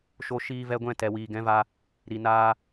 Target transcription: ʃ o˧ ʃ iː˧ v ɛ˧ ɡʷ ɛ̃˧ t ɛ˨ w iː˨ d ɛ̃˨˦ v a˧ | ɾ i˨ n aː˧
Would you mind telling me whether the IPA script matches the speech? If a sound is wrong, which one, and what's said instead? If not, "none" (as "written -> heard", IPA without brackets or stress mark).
d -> ɡ